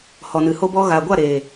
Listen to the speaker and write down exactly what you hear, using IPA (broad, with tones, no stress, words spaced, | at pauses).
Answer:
hɔ˨nɨ˨ho˧bɔ˧ ɣaː˨ɡʷa˦˨ɾeː˨